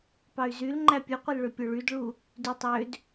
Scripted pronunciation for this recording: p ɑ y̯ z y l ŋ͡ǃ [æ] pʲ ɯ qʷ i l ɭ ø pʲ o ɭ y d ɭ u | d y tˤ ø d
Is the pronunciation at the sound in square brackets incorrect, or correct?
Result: correct